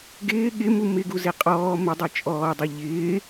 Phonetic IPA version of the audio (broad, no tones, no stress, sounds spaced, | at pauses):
ɡ ɪː ɠ ɪ m u m ɪ ɡ u z e qʼ ɔː m ɪ dˤ e t͡ʃʼ ɔː dˤ e ʎ ɪː